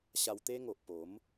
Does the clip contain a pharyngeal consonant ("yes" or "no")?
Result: no